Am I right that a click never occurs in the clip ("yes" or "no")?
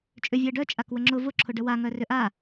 no